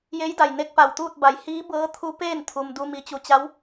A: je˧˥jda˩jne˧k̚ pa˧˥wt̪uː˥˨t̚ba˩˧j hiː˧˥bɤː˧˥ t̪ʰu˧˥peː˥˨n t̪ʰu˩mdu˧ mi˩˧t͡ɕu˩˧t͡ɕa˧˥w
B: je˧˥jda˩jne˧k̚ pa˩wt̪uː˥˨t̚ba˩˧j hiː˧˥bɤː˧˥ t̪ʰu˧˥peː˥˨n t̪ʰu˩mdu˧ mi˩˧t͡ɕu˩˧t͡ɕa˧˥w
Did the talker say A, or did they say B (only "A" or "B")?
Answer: B